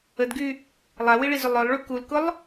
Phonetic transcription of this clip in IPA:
ə d ɡ y | lˠ a w i ɭ i z ʏ lˠ œ lˠ ɭ y k u l k ʊ lˠ

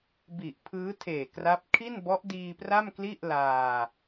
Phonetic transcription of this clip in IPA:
b i˨˩ ʔ pʰ ɯː˦˥ tʰ eː˨˩ k r a˦˥ p̚ kʰ i˥˩ n b ɔ˦˥ ʔ d iː˧ p r a˥˩ m k l i˥˩ ʔ l aː˧

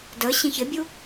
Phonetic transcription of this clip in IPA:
d ə ɕ ĩ ç ɪ bʲ u

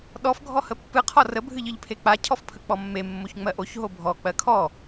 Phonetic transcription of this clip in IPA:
ɗ ɔ f ɡʱ ɔ h ə pː ɨ qʰ ɔ r ə bʱ ɨ ʎ ɨ ʎ pʰ e k͡p a cʰ ɔ f pʰ ə k͡p ɔ mː e mː o ç ŋ͡m ɜ ʔ o ç ɦ o bʱ ɔ k͡p ɜ kʰ ɔ

